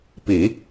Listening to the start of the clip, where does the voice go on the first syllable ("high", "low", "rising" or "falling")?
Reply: low